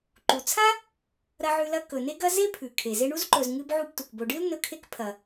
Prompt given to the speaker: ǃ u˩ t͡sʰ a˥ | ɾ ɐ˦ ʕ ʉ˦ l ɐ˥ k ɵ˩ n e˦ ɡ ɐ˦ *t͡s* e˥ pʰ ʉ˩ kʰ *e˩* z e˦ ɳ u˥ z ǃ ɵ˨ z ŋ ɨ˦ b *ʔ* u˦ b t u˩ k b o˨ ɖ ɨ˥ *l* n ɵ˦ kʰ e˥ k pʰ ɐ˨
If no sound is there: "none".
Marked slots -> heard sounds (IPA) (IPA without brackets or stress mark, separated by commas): z, e˩, ʕ, l